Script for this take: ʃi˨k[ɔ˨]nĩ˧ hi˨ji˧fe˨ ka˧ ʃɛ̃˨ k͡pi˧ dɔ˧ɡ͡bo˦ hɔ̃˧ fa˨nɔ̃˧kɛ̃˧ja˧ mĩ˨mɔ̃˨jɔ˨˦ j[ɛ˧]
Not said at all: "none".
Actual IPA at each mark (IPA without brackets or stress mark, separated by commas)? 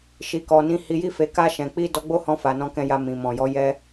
ɔ˨, ɛ˧